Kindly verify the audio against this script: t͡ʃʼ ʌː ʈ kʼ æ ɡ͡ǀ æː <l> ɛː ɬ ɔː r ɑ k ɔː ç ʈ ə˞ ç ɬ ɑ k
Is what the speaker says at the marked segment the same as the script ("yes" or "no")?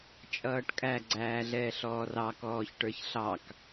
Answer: no